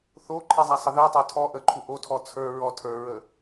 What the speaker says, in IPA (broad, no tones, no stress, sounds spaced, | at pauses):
θ o ǃʰ i zˤ a sˤ ə ð i tˤ ə˞ tʰ ɔ ʔ ə ǃʰ u ʔ o tʰ ɔ t͡sʰ ə˞ ɹ ɔ tʰ ə˞ ɹ ə